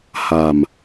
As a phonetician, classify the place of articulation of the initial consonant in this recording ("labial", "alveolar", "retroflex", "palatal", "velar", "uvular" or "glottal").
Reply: glottal